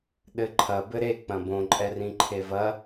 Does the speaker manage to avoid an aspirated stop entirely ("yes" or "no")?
no